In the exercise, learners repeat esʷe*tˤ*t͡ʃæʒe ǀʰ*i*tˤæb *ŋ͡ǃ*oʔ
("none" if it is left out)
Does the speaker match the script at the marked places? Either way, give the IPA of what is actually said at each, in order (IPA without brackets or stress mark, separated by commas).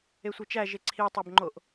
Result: none, i, ŋ͡ǃ